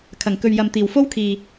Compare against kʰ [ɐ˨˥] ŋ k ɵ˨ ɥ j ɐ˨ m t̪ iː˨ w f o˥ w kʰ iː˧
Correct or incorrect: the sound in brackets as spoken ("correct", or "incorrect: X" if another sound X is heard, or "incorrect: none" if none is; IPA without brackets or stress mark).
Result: incorrect: ɐ˨˩